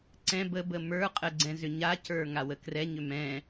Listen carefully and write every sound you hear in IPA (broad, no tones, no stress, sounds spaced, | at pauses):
ǀ ɛ̃ b ə b ə m ə˞ qʼ ə ɡ͡ǀ ɛ̃ z ʏ ɲ a c ə˞ ŋ a w ə k r ɛ ɲ ʏ m ɛ̃